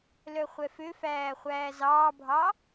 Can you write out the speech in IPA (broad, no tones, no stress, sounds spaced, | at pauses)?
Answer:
l œ χʷ ɛ f ø f æː χʷ æː z ɑː bʱ ɑ